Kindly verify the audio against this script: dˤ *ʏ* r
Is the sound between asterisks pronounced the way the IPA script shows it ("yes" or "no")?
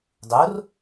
no